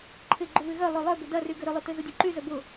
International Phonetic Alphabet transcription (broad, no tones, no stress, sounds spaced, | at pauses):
ǃʰ ɪ ɡ͡ǃ ʏ β ɪ ɣ œ lˠ ø lˠ œ b ʏ d ɐ r y ɡ ø ɾ ʏ lˠ y t ø z ʊ dʲ œ ǃ y z œ b ʊ